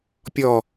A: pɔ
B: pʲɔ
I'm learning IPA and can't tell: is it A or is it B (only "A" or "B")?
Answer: B